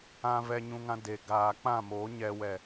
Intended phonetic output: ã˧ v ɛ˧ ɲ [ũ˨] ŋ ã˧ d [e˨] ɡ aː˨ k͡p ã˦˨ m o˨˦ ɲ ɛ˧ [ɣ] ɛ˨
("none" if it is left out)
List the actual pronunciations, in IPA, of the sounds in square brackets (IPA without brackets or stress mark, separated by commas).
ũ˧, e˨, w